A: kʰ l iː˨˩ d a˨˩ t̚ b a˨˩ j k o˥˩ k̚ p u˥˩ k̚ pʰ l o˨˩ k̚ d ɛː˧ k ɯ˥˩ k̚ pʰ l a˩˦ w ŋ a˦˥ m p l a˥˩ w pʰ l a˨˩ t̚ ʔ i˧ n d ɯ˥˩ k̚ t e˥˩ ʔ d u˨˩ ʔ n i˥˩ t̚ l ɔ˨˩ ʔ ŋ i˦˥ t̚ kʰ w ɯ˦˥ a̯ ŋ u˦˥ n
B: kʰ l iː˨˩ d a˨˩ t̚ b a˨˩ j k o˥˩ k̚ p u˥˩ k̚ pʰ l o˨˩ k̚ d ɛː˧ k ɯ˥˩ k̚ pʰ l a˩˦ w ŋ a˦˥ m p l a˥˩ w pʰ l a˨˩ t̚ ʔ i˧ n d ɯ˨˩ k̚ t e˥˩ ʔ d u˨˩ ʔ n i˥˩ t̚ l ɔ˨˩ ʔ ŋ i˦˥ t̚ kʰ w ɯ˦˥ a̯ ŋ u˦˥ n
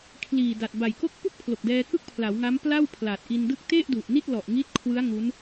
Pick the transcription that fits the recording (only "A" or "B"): A